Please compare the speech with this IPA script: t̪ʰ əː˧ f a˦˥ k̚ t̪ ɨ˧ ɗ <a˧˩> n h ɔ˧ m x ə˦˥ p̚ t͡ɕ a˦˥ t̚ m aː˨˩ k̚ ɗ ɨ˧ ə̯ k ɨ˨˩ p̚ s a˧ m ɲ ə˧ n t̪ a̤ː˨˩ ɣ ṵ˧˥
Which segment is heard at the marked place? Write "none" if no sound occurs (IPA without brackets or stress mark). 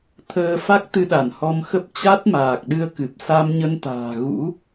a˧˩